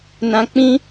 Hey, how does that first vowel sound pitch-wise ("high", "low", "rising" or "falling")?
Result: high